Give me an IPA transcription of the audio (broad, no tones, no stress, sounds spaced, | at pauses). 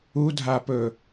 u dʱ a p ɵ